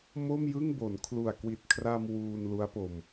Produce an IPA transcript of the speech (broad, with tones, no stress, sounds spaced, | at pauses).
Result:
m o˥˩ m j ɯ˥˩ ŋ b o˩˦ n kʰ l u˨˩ a̯ k w i˨˩ t̚ kʰ r a˧ m w uː˧ n l u˦˥ a̯ p o˧ m